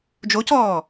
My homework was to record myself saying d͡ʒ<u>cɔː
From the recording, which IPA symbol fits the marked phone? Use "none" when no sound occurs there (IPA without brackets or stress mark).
o